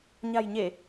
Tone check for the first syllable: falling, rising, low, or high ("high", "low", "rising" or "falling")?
low